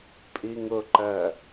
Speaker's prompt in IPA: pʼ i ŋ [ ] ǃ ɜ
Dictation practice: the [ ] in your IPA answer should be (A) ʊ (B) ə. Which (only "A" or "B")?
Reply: A